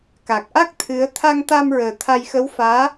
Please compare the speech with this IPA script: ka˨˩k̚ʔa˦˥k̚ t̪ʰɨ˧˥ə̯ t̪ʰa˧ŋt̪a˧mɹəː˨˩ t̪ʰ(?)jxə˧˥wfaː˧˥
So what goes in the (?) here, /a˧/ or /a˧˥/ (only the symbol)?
a˧